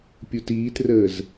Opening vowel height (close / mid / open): close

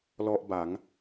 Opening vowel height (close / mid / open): mid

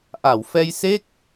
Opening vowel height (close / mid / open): open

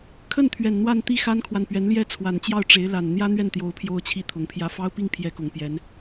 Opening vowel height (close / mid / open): mid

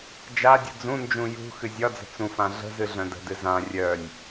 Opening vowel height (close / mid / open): open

